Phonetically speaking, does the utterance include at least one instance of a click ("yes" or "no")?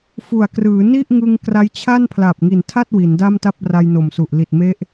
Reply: no